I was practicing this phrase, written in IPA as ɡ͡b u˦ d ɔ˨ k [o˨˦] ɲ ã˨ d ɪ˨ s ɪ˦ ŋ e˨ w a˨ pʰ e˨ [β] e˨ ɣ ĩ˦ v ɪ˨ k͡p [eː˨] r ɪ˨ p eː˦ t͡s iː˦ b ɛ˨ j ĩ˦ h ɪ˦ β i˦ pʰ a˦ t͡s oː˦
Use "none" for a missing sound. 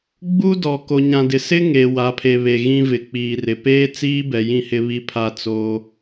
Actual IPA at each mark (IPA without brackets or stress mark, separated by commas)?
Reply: o˨, β, iː˨